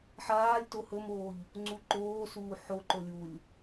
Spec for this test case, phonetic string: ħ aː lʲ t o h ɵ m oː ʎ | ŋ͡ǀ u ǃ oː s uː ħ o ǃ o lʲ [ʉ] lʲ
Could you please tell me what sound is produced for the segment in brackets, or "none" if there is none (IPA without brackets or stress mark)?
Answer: u